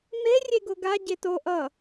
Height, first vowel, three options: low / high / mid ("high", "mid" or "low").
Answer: mid